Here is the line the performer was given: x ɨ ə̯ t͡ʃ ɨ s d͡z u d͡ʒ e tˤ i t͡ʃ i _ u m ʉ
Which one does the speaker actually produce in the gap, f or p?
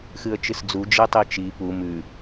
p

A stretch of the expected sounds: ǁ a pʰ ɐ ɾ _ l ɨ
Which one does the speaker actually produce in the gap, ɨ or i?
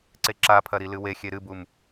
i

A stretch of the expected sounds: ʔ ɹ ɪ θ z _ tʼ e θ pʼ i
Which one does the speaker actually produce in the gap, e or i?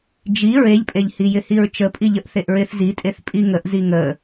i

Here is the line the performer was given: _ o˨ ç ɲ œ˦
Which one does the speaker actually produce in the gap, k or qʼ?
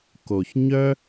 k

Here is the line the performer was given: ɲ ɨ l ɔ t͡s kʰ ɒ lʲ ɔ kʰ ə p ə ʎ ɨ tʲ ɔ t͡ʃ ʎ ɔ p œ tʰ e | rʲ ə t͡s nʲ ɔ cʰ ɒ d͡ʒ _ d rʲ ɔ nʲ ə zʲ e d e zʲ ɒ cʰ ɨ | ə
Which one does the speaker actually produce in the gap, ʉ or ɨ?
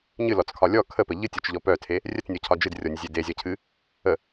ɨ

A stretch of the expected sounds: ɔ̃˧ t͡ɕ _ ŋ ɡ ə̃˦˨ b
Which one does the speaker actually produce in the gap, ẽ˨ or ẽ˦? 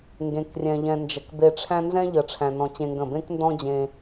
ẽ˦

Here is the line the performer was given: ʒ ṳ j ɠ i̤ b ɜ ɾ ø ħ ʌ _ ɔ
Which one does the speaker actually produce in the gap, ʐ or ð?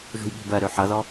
ð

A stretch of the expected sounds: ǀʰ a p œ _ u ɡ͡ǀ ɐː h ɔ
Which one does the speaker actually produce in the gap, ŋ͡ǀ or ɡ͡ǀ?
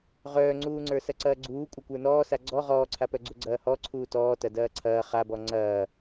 ɡ͡ǀ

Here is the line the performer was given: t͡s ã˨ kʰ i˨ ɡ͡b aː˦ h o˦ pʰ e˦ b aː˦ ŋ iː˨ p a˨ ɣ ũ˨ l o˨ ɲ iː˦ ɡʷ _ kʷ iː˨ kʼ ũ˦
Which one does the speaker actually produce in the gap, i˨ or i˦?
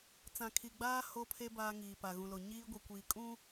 i˨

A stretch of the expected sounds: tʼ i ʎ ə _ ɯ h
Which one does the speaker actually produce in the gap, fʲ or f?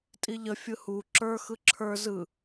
fʲ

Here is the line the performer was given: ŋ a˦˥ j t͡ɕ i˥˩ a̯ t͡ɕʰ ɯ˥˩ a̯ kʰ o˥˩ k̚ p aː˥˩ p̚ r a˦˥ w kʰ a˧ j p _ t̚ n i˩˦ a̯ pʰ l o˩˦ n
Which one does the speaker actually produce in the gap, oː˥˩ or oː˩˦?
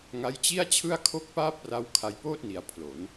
oː˥˩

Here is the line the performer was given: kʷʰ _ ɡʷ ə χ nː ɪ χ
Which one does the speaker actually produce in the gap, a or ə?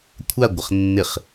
a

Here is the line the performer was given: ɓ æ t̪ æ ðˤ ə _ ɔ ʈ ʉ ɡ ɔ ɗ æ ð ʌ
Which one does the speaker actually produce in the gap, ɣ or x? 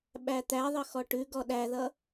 x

